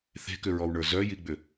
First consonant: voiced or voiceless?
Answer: voiceless